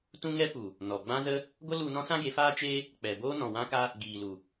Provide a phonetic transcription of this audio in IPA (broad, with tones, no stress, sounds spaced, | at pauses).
t ũ˦ ŋ ɛ˦ p u˨ | n ɔ˨ ɡ͡b ã˦ z ə˦ | ɡʷ ə˦ l u˧ n ɔ̃˦ s ã˦ ɡ e˨˦ f aː˦ t͡ʃ eː˦ | k͡p ɛ˨ b oː˦ n ɔ̃˨ w ã˦ k a˦ | ɡ iː˨ l u˨